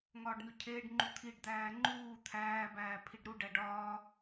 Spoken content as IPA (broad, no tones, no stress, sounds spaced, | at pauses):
ŋ ɒː ɖ n u cʰ eː ɖ ŋ͡ǃ u t̪ʰ i ɖ d̪ æː ŋ͡ǃ uː t̪ʰ æː b æː pʰ i ɖ ɾ u ɖ æ ɖ ɒː